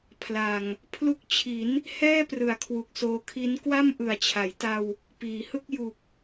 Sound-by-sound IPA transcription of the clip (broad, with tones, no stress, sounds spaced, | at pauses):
pʰ l a˨˩ ŋ | pʰ l u˦˥ k̚ t͡ɕʰ i˩˦ n | h ɛː˥˩ p r ɯ˩˦ a̯ kʰ w u˨˩ k̚ s oː˧ kʰ i˦˥ n k w a˥˩ m ʔ ɯ˨˩ a̯ t͡ɕʰ a˩˦ j t a˧ w | p iː˩˦ h ɯ˥˩ k̚ j u˨˩ k̚